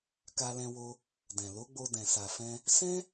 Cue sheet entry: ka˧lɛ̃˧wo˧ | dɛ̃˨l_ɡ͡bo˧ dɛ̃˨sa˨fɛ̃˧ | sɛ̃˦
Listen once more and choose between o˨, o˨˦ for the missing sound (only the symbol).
o˨˦